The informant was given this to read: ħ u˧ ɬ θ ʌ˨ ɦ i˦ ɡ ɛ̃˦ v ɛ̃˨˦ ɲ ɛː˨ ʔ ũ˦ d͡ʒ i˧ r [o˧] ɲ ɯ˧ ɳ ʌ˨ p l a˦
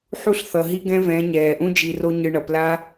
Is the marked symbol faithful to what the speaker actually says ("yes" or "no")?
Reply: no